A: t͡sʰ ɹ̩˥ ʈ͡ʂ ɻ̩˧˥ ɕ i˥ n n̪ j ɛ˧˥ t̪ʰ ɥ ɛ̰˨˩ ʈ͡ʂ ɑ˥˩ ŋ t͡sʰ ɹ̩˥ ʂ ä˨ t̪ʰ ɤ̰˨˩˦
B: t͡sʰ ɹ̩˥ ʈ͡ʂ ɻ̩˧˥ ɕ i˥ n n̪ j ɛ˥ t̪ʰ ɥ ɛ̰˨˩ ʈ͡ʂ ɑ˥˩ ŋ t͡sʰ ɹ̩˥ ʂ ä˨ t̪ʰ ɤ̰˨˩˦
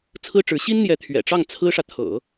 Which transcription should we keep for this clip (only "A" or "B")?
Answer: A